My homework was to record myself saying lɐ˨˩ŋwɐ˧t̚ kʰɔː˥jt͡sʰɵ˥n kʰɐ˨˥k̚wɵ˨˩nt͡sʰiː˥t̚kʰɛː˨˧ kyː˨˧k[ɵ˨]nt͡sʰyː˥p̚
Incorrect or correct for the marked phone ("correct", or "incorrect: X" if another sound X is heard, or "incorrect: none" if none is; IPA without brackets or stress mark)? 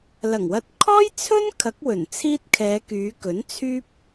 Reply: incorrect: ɵ˨˥